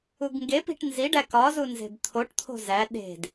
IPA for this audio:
u ɡ ŋ ɡ e p i̤ ʈ n z i ɖ æ k ɒ z u n z e̤ b t̪ʰ o ʈ t̪ʰ o̤ z æ ɗ e̤ d

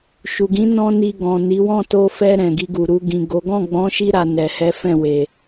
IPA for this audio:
ʃ u˨ ɡ ĩ˨˦ n ɔ̃˦ n i˧ ɡ ɔ̃˨ n i˨˦ w ɔ̃˦˨ t o˧ f ɛ˧ ɾ ɛ̃˨ ɡ i˧ ɡ u˨ ɾ u˧ ɡ ĩ˨ ɡ o˨˦ ɡ ɔ̃˦˨ ɡ͡b ɔ̃˨˦ ʃ i˧ ɾ a˨ n ɛ˨ h ɛ˨˦ f ɛ̃˦˨ w e˨

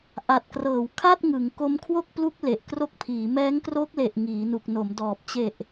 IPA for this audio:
ʔ a˨˩ t̚ k r ɤː˩˦ w kʰ a˥˩ t̚ ŋ ɯ˩˦ ŋ k o˦˥ m kʰ w o˥˩ k̚ p l u˦˥ k̚ l e˨˩ ʔ k r o˦˥ k̚ pʰ iː˩˦ m ɛː˦˥ ŋ k r o˦˥ k̚ l e˨˩ ʔ ŋ iː˩˦ n u˨˩ k̚ n o˩˦ m d ɔː˨˩ p̚ t͡ɕ e˨˩ ʔ

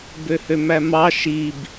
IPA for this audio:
b ø h ø m æ m ɑ ʃ i b

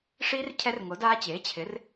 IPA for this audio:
ʂ i˦˥ r cʰ ɛ˦˥ r ŋ o˩˥ d aː˦˥ t͡ɕ eː˩˥ t͡ɕʰ ɪ˩˥ r

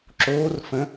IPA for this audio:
ǁ oː r f ə̃

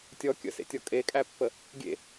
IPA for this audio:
tʲ ɔ kʲ ə̰ s ḛ tʲ ɔ kʼ e kʼ æ pː ə | ɡʲ ḛ

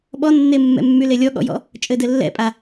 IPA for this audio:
ɓ ɔ nː e mː ɛ̰ mː y l e lʲ ɔ ɠ ɔ̰ j ɔ̰ | t͡ʃʼ ɘ d ɘ lː ɛ̰ pʼ a

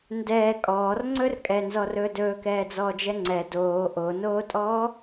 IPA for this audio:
n d ɛː kʼ ɔː r ŋ͡ǀ ɵ r kʼ ɛ n z ɔ r ɵː d ɵː k ɛː d͡z ɔː d͡ʒ ɛ ŋ͡ǀ ɛ d oː ʔ o n oː tʼ ɔː

